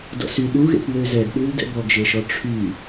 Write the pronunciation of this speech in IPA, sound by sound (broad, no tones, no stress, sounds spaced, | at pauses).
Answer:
d ɔ̰ s y ɗ u ɣ ḛ p w ø z ɛ ɡ ɗ ʉ l d ɛ̰ b ɔ ɡ ʒ e ʃ ɔ ʈ͡ʂʰ y